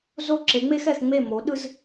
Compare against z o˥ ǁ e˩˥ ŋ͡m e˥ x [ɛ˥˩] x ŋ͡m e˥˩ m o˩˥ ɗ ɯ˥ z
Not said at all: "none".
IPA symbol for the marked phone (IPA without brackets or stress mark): ɛ˥˩